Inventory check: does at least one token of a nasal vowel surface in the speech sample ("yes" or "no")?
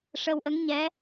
no